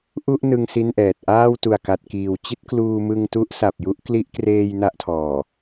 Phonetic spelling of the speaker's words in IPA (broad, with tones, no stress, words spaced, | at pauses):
ʔu˥˩ʔnɯ˧ŋ si˥˩nʔɛː˨˩t̚ ʔaː˥˩wtu˨˩a̯ka˨˩t̚kiː˨˩w t͡ɕi˥˩t̚kluː˧mɯ˧ŋ tu˦˥ʔsa˨˩p̚ju˦˥ʔ kli˦˥ʔkreː˧j na˥˩ʔtʰɔː˨˩